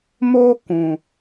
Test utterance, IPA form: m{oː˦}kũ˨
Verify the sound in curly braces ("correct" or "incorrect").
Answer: correct